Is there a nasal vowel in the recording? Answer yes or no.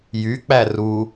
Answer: no